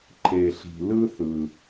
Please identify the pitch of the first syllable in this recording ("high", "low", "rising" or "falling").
low